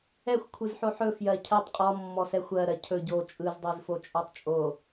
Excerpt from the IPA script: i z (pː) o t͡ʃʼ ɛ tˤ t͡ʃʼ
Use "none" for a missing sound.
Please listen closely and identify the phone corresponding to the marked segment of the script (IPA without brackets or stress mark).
f